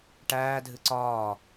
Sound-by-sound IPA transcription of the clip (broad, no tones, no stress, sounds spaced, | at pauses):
ʈ æː dʱ ɨ ǀ ɒː